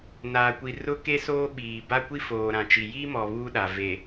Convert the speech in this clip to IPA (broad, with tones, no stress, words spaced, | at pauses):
naː˨kʷi˨rʊ˦ ke˦soː˦ɓiː˨ ba˦ kʷi˦foː˨ɾã˨t͡ʃi˨ ji˦mɔ˨ βuː˦ɗa˨ ve˨